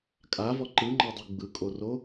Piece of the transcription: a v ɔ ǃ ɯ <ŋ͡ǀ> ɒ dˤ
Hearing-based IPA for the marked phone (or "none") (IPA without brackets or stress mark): ŋ͡ǃ